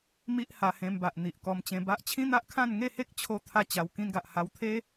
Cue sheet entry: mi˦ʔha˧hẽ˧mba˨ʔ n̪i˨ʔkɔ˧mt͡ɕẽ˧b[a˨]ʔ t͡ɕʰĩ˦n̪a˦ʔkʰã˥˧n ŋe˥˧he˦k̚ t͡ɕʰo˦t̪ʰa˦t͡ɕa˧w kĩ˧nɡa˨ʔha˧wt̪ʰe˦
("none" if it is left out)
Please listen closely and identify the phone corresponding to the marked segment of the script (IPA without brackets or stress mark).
a˦